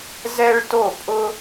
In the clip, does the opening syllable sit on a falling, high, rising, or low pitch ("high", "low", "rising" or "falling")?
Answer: high